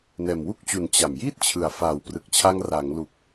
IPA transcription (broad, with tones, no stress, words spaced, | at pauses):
nɛː˨˩mwu˥˩k̚t͡ɕu˩˦n t͡ɕa˨˩mjiː˥˩t̚ t͡ɕʰɯ˨˩a̯ faː˨˩wprɯ˨˩k̚t͡ɕʰa˧ŋ ra˩˦ŋlu˨˩k̚